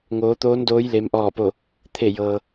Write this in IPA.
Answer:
ŋ oː˩˧ t̪ oː˧˥ n d oː˧˥ j l e˧˥ m ʔ ɔː˥˨ p o˥˨ | t̪ʰ e˧˩ j ɤː˩

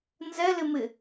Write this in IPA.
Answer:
n z ɛ l ɪ m ɪ

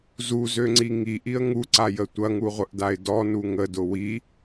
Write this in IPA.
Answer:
z u z ø ŋ͡ǀ i ŋ i ʔ i ə̯ ŋ u ǀ a j ə tʷ ɐ ŋ u ʁʷ ə ʔ d a ɪ̯ d ɔ n u ŋ ə d ʊ w i

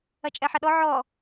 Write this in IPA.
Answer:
ɐ t͡ʃʼ ɛ ħ ɐ ɗ ɔ ʕ ɔ

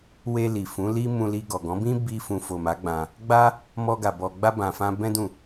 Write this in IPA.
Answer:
w e˧ l i˨ f ũ˨˦ l i˦ m ũ˧ l i˧ ɡ ɔ˨ ɡ ɔ̃˨˦ b ĩ˦ b i˦ f ũ˧ f o˨ m a˨˦ ɡ͡b ã˧ | ɡ͡b a˦ | m ɔ˧ ɡ a˨ b ɔ˧ ɡ͡b a˧ b ã˨ f ã˧ b ɛ̃˦ d ũ˦˨

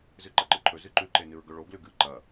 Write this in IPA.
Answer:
z ɨ ǃ ɐ ǃ ɨ ǃʰ ɵ z ɨ ǃ ʉ ǃ e n ɨ ɹ ɡ ɵ ɭ o ɡ l ʉ ɡ ɨ ǃ ɐ

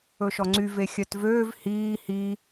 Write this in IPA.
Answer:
ɵ ʃ ɔ ŋ͡ǀ y v e xʲ œ t v øː v h iː h i

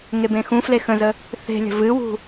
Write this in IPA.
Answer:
ŋ e b ẽ x ũ f l e x ə̃ z ə | θ e̤ lʲ ə̤ v ɨ w ṳ

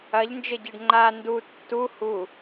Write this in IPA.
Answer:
ɐ ʎ n d͡ʒ ɘ ɟ e ɖ ŋ͡ǃ a n d u tː u h u

